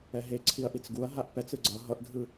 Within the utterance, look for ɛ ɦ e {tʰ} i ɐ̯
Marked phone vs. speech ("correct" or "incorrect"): incorrect